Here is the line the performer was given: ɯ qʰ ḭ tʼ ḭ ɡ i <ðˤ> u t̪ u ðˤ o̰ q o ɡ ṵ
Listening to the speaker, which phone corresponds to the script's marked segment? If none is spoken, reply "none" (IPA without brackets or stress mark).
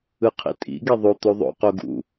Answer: ðˤ